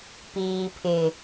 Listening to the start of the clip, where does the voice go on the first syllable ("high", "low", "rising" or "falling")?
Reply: low